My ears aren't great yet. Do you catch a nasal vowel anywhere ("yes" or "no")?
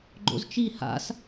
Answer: no